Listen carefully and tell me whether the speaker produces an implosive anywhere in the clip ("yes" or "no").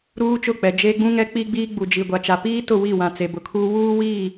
no